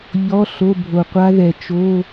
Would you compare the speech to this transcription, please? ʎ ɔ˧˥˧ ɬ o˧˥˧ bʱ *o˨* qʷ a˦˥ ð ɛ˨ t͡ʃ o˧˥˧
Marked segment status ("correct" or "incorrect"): correct